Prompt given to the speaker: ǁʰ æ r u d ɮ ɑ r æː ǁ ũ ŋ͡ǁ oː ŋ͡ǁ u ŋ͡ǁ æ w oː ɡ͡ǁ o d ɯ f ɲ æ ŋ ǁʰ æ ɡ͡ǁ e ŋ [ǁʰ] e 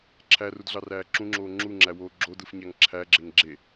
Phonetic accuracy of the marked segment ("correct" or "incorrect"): incorrect